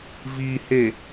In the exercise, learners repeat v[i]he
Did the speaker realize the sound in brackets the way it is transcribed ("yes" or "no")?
yes